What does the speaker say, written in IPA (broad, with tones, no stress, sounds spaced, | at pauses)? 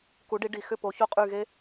k u˩˥ ɖ i˩˥ ɖ i˩ x ʏ˥˩ p o˩˥ ç o˥˩ qʼ y˥˩ ɣ e˥